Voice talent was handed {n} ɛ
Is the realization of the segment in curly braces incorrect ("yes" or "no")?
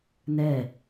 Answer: no